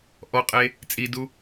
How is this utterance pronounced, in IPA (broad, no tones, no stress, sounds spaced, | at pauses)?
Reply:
ʔ ɔ qʼ e | t͡sʼ i d u